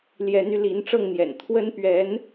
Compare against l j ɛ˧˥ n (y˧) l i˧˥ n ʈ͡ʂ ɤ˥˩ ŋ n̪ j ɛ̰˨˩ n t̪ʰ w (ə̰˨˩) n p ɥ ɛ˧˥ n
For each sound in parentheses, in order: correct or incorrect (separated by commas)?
correct, incorrect